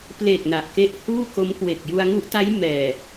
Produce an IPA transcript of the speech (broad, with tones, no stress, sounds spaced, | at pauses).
p l e˨˩ k̚ n a˨˩ ʔ k e˦˥ ʔ h uː˥˩ k o˦˥ m k w e˨˩ k̚ j u˧ a̯ ŋ u˦˥ ʔ t a˦˥ j m ɛː˨˩